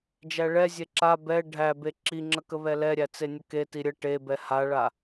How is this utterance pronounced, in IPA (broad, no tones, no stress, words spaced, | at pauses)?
d͡ʒæɭɛ zʲeǁa bɛ ɖʱæ beǁiŋ͡ǁəkə βɛlɛɾʲæ t͡senʲəketi ɾʲə ʈe bɛhaɭa